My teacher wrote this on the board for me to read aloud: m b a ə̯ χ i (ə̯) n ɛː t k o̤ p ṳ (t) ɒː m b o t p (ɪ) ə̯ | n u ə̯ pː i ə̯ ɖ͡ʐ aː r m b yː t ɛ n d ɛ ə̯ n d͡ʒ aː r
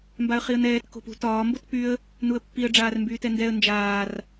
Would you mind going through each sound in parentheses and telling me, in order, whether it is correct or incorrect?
correct, correct, incorrect: y

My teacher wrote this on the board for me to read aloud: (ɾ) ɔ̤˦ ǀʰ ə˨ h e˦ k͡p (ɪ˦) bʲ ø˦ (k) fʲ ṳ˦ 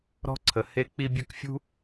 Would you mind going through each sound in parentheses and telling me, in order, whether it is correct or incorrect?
correct, incorrect: i˦, correct

